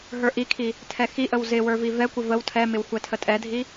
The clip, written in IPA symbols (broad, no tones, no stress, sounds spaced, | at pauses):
ɦ ə˞ ʔ i kʰ i | tʰ ɛ x i ʔ ə w z ɪ w ə˞ v i v ɛ kʷ ɪ v ə w tʰ ɛ m ɪ w xʷ ɛ tʰ ə tʼ ɛ dʱ i